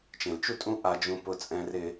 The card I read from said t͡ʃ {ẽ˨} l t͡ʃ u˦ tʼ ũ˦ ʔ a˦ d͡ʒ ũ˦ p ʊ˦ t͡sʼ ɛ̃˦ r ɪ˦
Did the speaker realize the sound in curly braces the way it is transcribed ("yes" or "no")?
yes